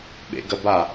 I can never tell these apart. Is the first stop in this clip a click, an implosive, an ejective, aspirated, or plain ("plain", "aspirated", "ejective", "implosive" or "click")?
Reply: implosive